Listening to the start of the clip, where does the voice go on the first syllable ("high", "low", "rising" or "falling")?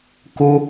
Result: high